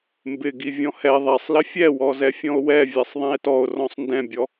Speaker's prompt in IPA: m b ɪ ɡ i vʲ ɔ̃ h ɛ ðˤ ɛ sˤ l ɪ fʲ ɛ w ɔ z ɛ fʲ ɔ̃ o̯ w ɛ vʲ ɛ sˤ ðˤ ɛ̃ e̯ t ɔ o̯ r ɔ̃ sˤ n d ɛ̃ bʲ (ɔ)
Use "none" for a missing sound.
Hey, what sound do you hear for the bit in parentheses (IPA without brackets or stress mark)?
ɔ